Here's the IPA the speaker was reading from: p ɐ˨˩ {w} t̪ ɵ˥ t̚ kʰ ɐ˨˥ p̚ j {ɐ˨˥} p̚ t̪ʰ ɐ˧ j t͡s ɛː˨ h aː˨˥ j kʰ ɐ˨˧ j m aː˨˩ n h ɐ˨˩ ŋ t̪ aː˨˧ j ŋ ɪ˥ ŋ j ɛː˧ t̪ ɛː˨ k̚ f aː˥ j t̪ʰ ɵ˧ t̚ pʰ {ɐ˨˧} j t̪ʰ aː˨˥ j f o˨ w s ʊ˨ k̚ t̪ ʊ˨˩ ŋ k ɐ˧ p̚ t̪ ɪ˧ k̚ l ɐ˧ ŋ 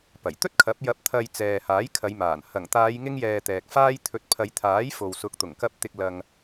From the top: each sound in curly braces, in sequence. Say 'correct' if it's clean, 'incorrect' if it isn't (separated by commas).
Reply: incorrect, correct, correct